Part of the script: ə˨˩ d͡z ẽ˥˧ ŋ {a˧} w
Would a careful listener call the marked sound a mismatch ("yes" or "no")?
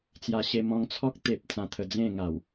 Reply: yes